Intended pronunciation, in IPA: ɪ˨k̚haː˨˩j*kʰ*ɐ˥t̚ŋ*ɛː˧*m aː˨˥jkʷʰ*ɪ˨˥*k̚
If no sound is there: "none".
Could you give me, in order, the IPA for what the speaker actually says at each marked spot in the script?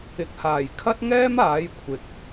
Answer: kʰ, ɛː˥, ɪ˨

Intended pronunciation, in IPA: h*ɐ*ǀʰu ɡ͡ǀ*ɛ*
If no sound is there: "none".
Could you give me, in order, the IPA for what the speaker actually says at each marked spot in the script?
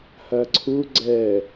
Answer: ɐ, ɛ

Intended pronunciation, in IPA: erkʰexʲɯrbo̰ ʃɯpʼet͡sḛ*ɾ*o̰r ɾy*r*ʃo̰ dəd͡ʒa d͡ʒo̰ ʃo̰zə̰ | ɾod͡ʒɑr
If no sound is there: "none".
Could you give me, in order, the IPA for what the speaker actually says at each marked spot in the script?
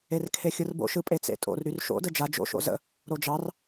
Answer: tʼ, r

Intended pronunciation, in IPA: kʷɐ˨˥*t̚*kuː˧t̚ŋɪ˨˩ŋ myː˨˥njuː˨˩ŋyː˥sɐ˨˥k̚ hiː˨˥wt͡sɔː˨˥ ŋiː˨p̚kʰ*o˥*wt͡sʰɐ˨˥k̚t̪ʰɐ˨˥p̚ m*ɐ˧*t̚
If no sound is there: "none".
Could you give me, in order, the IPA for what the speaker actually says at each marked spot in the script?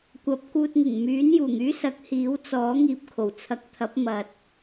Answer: p̚, o˨˩, ɐ˨

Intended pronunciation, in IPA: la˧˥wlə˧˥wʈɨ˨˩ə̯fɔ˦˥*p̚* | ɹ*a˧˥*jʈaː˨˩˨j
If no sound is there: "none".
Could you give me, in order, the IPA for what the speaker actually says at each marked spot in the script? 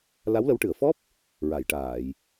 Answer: p̚, a˨˩˨

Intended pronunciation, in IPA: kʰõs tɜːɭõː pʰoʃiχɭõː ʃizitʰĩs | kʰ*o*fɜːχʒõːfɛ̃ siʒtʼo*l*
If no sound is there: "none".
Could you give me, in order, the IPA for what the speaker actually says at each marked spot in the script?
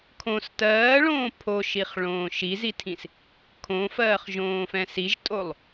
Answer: õ, lˠ

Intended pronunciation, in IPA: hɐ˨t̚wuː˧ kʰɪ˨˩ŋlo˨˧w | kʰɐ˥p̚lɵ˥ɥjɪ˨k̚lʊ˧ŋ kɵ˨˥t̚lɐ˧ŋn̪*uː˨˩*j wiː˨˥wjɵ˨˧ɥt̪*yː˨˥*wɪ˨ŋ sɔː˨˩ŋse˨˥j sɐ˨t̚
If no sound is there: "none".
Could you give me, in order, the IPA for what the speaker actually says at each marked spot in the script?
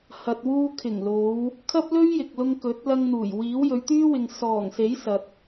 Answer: uː˨˩, yː˥

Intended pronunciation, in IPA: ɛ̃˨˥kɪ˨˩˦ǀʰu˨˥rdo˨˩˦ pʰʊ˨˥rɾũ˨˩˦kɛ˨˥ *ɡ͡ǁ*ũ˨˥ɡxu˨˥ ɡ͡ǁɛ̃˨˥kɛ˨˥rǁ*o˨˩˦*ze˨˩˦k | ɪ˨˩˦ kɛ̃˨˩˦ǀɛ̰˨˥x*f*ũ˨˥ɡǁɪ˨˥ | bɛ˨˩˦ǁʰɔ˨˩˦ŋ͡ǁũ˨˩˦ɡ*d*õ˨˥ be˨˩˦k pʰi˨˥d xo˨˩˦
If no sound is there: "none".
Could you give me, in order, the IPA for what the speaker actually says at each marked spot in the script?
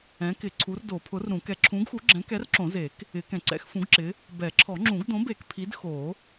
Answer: ǁʰ, õ˨˩˦, f, d

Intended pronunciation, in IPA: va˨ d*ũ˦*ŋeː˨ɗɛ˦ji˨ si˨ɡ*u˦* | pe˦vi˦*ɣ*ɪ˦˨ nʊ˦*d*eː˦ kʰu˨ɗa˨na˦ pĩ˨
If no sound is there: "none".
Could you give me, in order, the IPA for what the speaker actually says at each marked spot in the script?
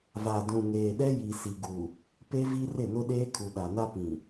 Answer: ũ˨, u˨, r, ɗ

